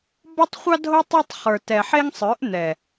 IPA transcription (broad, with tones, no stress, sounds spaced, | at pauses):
b ɒ˦ tˤ χʷ ɑ˦ dʱ o˦ tˤ ɛ˦ tˤ χ ə˞˨ t ɛ˨ ħ e˦ ŋ sˤ ə˞˨˦ ʔ n̪ ɛ˨